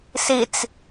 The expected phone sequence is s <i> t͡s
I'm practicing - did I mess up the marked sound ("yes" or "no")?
no